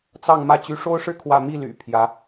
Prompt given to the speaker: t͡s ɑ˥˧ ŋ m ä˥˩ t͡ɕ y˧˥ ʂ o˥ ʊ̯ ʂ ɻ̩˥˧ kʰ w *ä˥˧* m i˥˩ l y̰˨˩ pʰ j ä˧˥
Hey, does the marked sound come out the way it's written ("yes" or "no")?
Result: yes